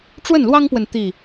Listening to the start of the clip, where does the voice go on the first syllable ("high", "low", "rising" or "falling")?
falling